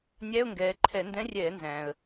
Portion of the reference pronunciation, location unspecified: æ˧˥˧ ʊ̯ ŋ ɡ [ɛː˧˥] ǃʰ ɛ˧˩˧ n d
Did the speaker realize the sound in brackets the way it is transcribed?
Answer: no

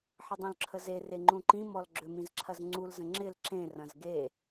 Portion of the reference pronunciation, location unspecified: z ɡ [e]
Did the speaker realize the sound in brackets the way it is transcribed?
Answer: yes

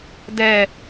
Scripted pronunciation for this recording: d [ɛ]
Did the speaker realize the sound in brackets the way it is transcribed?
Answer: yes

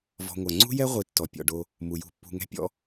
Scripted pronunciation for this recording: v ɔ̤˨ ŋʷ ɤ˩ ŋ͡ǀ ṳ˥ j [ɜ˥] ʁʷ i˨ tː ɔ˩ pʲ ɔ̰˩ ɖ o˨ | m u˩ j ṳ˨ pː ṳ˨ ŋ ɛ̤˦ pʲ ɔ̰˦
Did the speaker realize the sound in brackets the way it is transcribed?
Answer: no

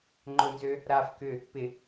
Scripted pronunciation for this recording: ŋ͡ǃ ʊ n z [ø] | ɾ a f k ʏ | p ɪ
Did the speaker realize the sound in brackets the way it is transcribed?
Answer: yes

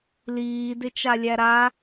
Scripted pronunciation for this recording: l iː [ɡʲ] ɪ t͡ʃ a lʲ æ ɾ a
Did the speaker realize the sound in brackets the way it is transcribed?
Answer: no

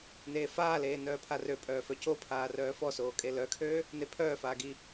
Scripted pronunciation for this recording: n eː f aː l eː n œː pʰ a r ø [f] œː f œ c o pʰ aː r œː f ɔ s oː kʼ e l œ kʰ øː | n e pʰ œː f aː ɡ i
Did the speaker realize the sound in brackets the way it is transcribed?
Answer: no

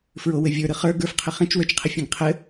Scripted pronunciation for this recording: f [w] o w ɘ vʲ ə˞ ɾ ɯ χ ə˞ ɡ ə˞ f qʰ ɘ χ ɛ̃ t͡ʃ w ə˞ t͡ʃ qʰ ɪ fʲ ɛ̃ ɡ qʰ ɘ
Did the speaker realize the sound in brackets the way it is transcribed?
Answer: no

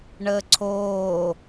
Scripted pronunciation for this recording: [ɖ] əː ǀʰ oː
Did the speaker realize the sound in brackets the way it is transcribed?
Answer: no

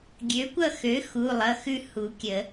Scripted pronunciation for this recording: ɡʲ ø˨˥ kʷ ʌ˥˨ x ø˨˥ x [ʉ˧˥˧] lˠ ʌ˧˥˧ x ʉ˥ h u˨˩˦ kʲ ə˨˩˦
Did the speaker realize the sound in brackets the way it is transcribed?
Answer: no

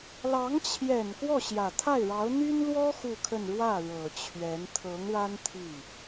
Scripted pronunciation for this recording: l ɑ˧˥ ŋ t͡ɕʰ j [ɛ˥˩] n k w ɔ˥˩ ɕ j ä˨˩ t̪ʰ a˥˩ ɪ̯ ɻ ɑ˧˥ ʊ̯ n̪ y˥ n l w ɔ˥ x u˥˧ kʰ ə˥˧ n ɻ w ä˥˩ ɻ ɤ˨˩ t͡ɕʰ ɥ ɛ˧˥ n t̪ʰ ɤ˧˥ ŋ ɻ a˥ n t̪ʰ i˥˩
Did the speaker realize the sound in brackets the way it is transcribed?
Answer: no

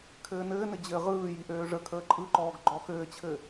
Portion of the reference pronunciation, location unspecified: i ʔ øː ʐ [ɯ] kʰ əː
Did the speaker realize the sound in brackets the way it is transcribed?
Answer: no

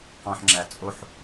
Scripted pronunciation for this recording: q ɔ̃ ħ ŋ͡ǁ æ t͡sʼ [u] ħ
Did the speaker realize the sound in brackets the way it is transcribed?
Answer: no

